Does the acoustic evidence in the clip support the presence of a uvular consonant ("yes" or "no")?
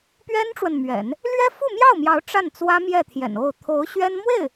no